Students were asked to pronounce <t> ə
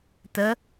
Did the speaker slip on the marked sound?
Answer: no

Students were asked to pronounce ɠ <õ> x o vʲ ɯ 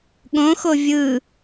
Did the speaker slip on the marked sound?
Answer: no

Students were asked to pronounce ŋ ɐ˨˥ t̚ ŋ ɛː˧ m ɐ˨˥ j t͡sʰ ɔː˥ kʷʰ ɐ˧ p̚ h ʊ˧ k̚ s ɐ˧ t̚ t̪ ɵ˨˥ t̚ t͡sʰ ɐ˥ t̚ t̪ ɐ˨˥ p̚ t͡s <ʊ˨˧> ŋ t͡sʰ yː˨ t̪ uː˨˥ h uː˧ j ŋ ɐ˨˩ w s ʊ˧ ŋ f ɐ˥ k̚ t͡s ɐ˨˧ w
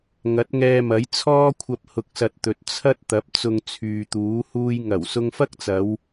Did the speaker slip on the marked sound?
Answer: yes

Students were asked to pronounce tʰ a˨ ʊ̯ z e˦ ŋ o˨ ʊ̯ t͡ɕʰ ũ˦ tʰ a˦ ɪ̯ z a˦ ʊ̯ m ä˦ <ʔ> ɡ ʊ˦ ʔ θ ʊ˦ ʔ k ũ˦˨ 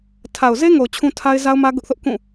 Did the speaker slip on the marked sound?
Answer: yes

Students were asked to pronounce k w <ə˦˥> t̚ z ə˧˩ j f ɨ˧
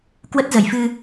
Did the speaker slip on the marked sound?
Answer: no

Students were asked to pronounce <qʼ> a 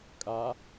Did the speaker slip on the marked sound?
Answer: yes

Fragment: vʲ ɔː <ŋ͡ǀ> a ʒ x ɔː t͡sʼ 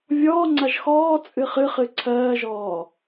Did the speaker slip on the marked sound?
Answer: no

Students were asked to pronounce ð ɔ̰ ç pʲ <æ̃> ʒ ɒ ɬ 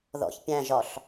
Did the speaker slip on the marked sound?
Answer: no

